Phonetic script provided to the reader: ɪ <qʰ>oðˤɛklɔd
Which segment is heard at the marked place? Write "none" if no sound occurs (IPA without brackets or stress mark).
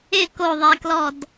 k